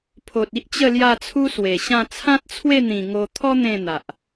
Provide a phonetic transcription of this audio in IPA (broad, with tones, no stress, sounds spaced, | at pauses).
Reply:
pʰ o˨ t̚ i˦ ʔ t͡ɕ ə˥˧ l j a˥˧ t͡sʰ u˦ s w e˨˩ ɕ ã˥˧ t͡sʰ ã˦ t̚ t͡sʰ w e˥˧ n̪ ĩ˨˩ ŋ o˧ t̪ʰ ɔ˦ n̪ ẽ˥˧ n̪ a˨ ʔ